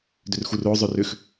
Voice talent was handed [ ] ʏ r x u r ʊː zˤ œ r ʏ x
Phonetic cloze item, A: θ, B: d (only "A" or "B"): B